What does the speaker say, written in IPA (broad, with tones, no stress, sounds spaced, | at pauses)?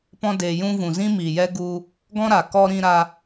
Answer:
p ɔ̃˧ d eː˨ j ũ˧ v ũ˨ z ĩ˦ m iː˨ j ɛ˦ ɡ u˧ | ɡ ɔ̃˦ ɾ a˨ k ɔ˧ ɾ ĩ˧ ɾ a˧